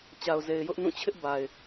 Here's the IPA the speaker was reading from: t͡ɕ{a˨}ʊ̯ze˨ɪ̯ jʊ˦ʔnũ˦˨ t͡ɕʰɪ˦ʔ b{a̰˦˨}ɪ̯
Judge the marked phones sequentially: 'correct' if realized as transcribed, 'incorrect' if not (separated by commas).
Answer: correct, incorrect